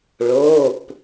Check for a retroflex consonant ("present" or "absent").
present